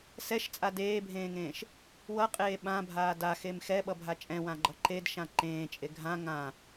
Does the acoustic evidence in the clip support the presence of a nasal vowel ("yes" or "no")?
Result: yes